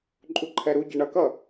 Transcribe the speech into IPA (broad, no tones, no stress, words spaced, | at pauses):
ǃʼuǃʰɛɾuɟɛ ɳʌkʌ